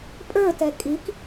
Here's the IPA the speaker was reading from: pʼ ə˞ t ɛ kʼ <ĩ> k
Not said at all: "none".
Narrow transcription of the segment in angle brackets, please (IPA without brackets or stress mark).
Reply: i